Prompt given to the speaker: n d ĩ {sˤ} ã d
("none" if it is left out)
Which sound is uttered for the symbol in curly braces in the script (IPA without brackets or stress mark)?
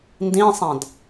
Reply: sˤ